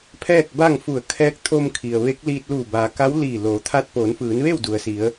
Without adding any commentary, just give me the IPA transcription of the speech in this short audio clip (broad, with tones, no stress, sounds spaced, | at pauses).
pʰ ɛː˥˨ k̚ b a˥˨ ŋ f u˧˩ ə̯ kʰ ɛː˧˥ k̚ t̪ʰ o˧ m kʰ i˩ ə̯ ʋ e˧˥ k̚ l iː˧ t̚ l uː˧˩ b aː˩ k a˧˥ w l iː˧˩ l oː˩˧ t̪ʰ a˧ t̚ p oː˩˧ n f ɯː˩˧ n ʋ e˥˨ w d u˩ ə̯ s i˩˧ ə̯